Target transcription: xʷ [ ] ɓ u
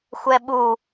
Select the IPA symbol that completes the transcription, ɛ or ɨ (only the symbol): ɛ